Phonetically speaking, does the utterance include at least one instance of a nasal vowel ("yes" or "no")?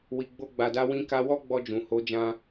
yes